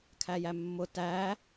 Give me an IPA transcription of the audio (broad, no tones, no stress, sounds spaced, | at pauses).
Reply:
kʰ æ j æ mː ʊ t æ